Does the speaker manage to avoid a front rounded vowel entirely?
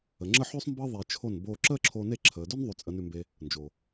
yes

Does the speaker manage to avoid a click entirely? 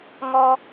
yes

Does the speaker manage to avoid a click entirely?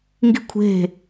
yes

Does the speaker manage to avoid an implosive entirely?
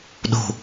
no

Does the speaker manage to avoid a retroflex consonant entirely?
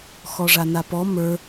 no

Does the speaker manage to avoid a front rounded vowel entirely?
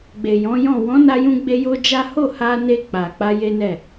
yes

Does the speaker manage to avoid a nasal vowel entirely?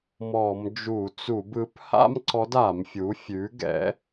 yes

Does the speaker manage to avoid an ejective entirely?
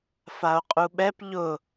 no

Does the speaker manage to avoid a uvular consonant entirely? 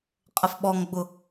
no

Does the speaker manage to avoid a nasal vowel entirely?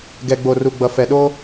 yes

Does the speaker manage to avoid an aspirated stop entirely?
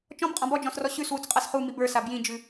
yes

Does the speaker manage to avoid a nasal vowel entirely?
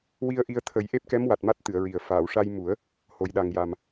yes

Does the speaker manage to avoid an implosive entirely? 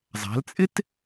yes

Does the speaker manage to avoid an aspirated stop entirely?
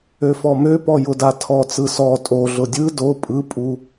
no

